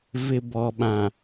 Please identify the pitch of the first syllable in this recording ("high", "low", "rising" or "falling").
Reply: low